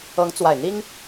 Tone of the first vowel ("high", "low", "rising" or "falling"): rising